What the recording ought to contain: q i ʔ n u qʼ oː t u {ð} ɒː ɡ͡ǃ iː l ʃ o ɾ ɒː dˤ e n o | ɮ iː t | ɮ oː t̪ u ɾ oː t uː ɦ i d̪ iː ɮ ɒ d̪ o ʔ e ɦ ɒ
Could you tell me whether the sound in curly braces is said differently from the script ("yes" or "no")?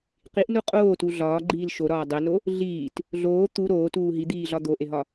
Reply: yes